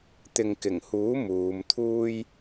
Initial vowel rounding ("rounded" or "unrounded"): unrounded